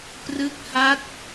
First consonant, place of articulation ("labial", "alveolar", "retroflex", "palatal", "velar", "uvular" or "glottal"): labial